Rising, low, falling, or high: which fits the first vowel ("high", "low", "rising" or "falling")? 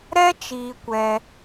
high